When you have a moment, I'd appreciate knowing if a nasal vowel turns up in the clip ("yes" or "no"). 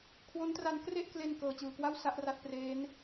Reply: no